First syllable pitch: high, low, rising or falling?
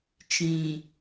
low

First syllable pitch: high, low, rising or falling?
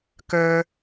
high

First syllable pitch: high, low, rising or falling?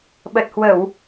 low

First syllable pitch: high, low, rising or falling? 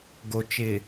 low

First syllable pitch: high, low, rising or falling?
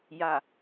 low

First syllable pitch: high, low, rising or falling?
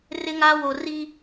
high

